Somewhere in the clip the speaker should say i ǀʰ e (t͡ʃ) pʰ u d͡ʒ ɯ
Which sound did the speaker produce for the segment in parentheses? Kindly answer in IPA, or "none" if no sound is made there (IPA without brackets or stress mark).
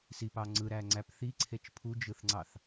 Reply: t͡ʃ